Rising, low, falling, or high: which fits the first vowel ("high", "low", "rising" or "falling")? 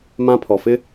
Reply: high